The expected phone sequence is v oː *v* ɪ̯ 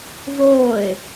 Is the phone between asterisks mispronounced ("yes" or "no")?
yes